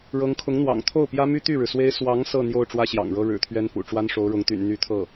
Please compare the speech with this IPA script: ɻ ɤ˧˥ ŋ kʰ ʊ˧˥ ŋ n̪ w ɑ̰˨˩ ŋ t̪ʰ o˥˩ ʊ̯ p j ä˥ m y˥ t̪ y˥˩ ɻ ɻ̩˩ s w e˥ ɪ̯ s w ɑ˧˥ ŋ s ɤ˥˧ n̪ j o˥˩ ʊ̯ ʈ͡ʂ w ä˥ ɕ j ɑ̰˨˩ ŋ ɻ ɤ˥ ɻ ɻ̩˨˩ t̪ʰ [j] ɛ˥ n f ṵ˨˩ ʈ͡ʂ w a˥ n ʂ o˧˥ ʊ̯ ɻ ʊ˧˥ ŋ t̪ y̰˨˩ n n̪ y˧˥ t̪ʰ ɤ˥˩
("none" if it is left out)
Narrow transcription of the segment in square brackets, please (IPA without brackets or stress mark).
ɥ